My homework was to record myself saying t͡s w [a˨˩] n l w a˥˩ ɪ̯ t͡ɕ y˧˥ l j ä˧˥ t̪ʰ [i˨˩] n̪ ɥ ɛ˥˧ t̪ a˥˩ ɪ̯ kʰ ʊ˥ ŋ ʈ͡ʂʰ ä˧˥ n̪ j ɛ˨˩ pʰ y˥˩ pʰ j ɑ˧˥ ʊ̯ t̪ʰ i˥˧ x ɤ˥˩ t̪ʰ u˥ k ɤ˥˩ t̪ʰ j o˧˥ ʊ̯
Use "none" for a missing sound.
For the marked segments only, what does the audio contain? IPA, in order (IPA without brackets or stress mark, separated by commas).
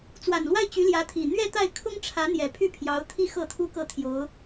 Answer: a˨˩, i˨˩